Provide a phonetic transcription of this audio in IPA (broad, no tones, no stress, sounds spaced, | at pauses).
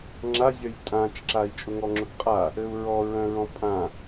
ŋ͡ǁ a zʲ œ j tʼ ã t͡ʃ ǁ a i̯ t͡ʃʼ ʊ ŋ ɔ ŋ͡ǁ ʊ ɡ qʼ a | ɘ u̯ ɹ ɔ ɹ œ̃ ɹ ɔ̃ pʼ ã